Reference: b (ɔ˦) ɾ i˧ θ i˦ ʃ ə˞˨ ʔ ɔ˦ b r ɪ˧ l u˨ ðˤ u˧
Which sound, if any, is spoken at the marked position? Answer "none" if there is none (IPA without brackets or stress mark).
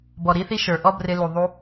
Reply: ɔ˨